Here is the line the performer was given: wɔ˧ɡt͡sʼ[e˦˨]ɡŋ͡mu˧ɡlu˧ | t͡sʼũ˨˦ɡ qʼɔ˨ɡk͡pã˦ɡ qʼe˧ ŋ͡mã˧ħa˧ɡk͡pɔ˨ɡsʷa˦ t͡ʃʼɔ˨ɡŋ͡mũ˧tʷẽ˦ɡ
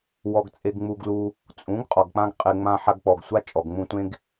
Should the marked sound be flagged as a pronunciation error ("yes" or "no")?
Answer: yes